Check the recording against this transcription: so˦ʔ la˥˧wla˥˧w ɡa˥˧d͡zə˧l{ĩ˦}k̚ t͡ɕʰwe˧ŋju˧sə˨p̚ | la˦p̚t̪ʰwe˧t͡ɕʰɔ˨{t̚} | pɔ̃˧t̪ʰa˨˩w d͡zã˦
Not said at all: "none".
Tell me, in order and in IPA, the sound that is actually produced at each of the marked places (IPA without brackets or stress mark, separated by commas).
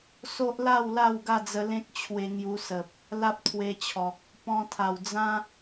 ẽ˦, k̚